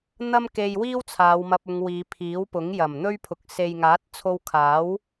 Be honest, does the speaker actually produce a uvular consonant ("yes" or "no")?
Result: no